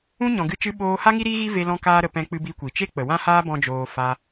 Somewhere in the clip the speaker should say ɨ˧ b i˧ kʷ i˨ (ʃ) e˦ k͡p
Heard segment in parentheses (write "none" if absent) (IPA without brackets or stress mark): t͡ʃ